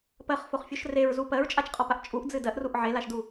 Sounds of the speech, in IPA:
pɜχfoχfʲoʃ reɹzu pɜɹt͡ʃʼat͡ʃqʼɒpaʔ t͡ʃʼuʔd͡zɨ dɜʔruʔ ʕelaʃdu

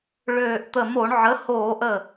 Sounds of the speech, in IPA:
ɭøː˧˩ʔt̪ə˧˩ mo˧˩˧ɳʕə˩˥ hoː˧˩˧ʔə˧˩

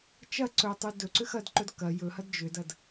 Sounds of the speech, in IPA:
t͡ʃɐ ǀɵ tˤudɵǀʏ xɐdǃɵd kɐ jɵhɐd d͡ʒʏdɐd

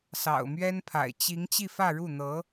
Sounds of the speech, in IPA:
sɑ̰˨˩ʊ̯mɥɛ˥npʰa̰˨˩ɪ̯ t͡ɕi˧˥ŋ t͡ɕi˥˧fä˥˧ɻu˥˩ n̪ɤ˧˥

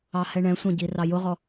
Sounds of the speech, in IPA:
ɑhɛɳɛ̃sʷɑ̃ ɟirɑjʊʁɔ

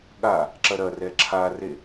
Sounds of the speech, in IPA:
ɠa | ǁɐɾɐrɛ ǁʰare

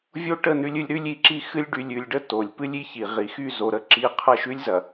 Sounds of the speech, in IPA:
vʲo˦ʈə˦˨nʉ˦lʲɨ˦lʲ ɾʉ˦lʲ i˨ǁi˦xɨ˦lʲ ɖy˨lʲʉ˨lʲɖə˦ to˨lʲpɨ˦lʲ i˦çi˨ʁi˨ xy˦˨zo˨ɾə˦ ǁi˦ qʰɐ˦˨ʃʉ˦lʲzɐ˨

